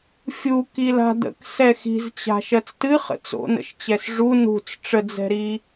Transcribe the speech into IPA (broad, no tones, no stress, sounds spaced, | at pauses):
fʲ u k i l a̤ d̪ ə̰ k s ɛ x i̤ z t͡ɕ a̤ ʃ ɜ t͡s t ɨ χ ə̰ t͡s o̰ n ə̰ ʃ t͡ɕ ɛ s ʐ u n ṳ t͡s ʈ͡ʂ ə d͡z ɛ̤ ɾ i